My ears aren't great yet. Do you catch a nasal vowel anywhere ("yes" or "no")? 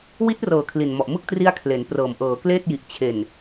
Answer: no